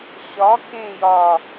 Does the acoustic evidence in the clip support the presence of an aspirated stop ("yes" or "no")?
no